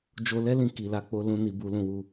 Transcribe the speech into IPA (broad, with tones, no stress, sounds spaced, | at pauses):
d͡ʒ o˧ l ɛ˦ l ĩ˧ k i˨ l a˧ k͡p o˧ l ũ˧ n i˧ b u˧ l ũ˧ w u˧